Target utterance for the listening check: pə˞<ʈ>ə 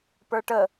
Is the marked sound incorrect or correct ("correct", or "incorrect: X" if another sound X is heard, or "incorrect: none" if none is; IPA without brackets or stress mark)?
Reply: correct